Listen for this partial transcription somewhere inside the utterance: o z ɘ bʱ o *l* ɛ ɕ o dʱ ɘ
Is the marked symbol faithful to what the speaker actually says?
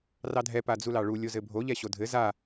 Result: no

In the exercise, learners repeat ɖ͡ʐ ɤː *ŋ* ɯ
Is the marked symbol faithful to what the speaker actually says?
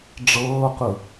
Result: no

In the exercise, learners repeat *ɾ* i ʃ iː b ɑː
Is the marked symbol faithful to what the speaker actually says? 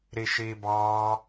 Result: yes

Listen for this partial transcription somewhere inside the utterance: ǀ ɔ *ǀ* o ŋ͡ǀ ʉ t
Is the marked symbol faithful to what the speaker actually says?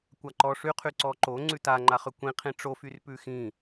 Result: no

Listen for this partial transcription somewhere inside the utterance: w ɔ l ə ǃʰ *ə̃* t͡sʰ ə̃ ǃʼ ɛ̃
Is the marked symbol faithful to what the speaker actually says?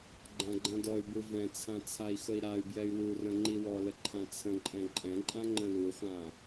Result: no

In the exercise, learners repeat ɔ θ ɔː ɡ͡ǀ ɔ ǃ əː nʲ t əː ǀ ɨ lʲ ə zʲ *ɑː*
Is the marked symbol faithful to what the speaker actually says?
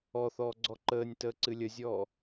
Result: no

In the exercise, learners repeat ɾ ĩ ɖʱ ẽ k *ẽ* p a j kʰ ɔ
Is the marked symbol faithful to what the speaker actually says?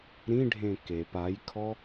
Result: no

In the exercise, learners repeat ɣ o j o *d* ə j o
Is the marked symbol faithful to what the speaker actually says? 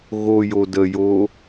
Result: yes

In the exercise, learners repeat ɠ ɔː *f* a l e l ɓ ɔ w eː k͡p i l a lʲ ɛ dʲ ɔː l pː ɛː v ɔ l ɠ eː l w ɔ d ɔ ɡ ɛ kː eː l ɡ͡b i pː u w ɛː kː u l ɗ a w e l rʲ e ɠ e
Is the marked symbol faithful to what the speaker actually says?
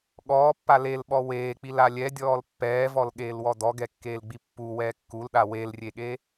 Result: no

